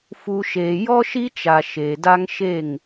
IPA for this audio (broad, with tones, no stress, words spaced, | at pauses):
fu˨ʃeː˨ jɔ˦ʃi˦t͡ʃa˨ ʃeː˨da˦ŋ ʃe˦˨ŋ